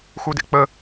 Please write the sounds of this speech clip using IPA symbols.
x u d ḛ k͡p ə

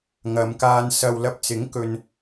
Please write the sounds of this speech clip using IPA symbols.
ŋ ɐ˨˧ m k aː˧ n s ɐ˨ w l ɐ˧ p̚ t͡s ɪ˨˥ ŋ k ɵ˧ n

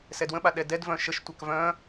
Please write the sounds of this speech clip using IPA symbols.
s ɛ d w ə̃ ɓ a ɗ ɛ d ɛ d v œ̃ ʃ ə ʃ tʷ a k v œ̃

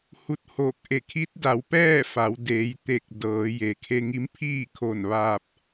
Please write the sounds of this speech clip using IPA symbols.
h u˧˥ t̚ h oː˧˩ k̚ ʔ e˧˩ kʰ i˧˥ t̚ d a˩˧ w p ɛː˥˨ f a˩˧ w d eː˩˧ j t̪ e˧˩ k̚ d ɤː˩˧ j e˩ kʰ e˧ ŋ i˧˥ m pʰ iː˥˨ kʰ o˧˩ n ʋ aː˧ p̚

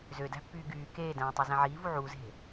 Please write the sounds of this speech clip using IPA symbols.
z ø d æ̤ pː yː ɡ yː k eː d æ̃ː tˤ ø z æ̃ ʕ iː v u ʕ u z e̤

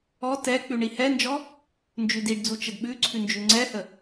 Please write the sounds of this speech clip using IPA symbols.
ɔ t ɛ k͡p ʉ ɳ i h ɛ n d͡ʒ ɔ | n d͡ʒ ʉ d i ɖ d͡z u t͡ʃ ə d ɓ ʉ ǀʰ ʉ n d͡ʒ ʉ ŋ͡ǀ ɛ h ə

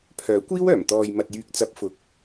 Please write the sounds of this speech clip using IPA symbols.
pʰ œː˨˥ kʷ iː˥ w œː˨˩ m t̪ ɔː˨ j m ɐ˨ t̚ j yː˨ k̚ t͡s ɐ˨˥ p̚ f ʊ˨ k̚

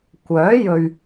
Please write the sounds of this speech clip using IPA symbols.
kʷ œː˨˥ j ɵ˨ ɥ

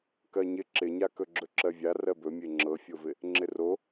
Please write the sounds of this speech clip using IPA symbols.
k ɜ ɲ ɪ ǁ ɪ ɲ a k ɵ ɡ͡ǁ ɵ ǁ ɜ vʲ a r ɜ b ɵ mʲ e ŋ͡ǁ ɤ fʲ o v ɪ | ŋ͡ǁ ɪ r o

